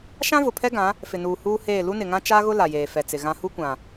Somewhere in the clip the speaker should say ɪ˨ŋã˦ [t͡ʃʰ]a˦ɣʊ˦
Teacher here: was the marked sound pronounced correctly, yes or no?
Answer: no